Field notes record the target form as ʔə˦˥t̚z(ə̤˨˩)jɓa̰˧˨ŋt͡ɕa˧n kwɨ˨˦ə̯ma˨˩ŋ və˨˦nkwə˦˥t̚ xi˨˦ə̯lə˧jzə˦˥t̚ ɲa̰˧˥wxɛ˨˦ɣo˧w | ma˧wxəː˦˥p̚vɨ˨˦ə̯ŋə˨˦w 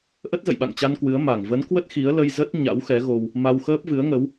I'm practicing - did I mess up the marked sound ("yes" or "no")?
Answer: yes